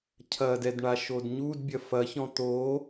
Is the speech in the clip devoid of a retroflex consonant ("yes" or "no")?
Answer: no